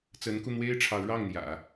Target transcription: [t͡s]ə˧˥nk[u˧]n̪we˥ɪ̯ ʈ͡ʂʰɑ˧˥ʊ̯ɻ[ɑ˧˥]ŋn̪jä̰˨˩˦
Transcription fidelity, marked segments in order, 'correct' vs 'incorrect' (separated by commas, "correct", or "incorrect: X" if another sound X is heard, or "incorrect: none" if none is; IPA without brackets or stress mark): correct, correct, incorrect: ɑ˥˩